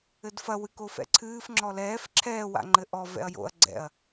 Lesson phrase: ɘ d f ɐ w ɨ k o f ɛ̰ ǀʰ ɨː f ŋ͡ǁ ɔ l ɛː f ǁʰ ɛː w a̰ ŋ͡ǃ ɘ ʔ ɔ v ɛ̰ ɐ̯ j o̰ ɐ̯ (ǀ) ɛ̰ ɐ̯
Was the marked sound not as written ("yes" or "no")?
yes